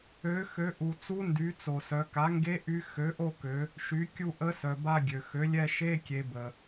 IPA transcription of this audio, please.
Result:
ø˩˥ x ø˩˥ ʔ u˩ t͡s u˧˥ n d y˩˥ t͡s o˩ s œ˩˧ k a˩˥ ŋ ɡ e˧˥ ʔ y˧˥ x ø˩˥ ʔ o˦˨ k ø˩˧ | ʃ y˩˥ kʲ u˦˨ ʔ ə˧˥ s œ˩ b a˦˨ ɡʲ ø˩ x ø˩˥ lʲ ɛ˦˨ ʃ e˧˥˧ kʲ e˩˧ b ə˩

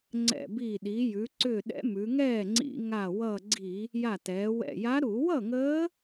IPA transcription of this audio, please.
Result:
ŋ͡ǀ ɛ̰˧˩ b i˧˩ ɗ i˩˧ j ʉ˩˧ ǀ ʏ˧˩ ɗ ɛ̰˧˥ m ʉ˩˧ ŋ ɛː˥˩ ŋ͡ǀ ḭ˧˩˧ ŋ a˧˩ w ʌ˧˩ ɡ͡ǀ i˧˩˧ | j a˧˩ t ɛː˩˧ w ɛ̰˧˩ j a˧˥ ɾ u˧˩˧ w ʌ˥˩ ŋ əː˧˥

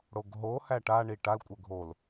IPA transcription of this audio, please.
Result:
ɽ o ɡ ɦ o h æ ʈ a ɳ i ʈ a l kʷʼ ə ɡʱ o l

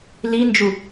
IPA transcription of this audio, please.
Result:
l i n d͡ʒ u

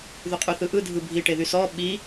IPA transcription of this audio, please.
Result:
ð y qʼ y θ ɯ ʔ ɯ dʱ ɯ bʱ i ʈ e ð y s ɔ ɓ i

